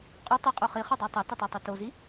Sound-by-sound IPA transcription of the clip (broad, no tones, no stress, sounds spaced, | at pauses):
qʼ o tˤ i qʼ o χ i χ o dˤ a tˤ o t i tˤ a tˤ a t o z i